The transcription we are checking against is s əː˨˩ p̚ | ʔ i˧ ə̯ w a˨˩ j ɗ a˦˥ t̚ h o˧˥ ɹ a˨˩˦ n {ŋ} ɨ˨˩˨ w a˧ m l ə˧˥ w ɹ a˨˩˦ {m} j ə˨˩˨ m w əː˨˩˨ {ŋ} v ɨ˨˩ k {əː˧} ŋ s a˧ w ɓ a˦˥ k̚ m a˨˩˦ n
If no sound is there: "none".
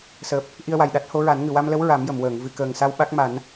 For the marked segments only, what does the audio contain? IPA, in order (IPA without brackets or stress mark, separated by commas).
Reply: ŋ, m, ŋ, əː˨˩